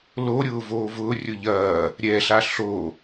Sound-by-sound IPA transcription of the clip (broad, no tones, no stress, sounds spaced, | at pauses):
l o ɾʲ ʊː v oː v ʊː rʲ ʊ ʎ ɐː | ɾʲ ɛ ɬ a ɬ o